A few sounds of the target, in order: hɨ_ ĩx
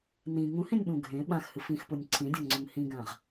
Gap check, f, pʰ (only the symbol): f